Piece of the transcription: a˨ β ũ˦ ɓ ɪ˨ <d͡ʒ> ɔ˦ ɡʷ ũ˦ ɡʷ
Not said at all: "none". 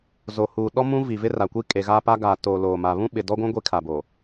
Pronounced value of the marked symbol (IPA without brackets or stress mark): d